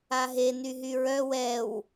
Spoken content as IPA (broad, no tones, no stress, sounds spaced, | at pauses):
a ɦ e n y ɦ y ɹ œ w ɛ w